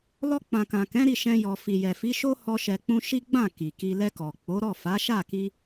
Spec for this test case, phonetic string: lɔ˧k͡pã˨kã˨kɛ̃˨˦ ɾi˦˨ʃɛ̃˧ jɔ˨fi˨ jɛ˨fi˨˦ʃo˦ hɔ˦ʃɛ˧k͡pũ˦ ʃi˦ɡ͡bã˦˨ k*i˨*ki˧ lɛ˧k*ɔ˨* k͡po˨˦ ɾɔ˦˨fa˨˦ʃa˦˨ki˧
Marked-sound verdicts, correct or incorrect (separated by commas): correct, correct